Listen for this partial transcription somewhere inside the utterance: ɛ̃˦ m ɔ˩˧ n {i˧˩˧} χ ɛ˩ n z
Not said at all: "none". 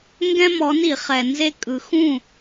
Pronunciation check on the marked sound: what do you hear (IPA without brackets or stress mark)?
i˧˩˧